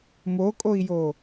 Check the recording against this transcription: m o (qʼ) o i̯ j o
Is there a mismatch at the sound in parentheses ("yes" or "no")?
yes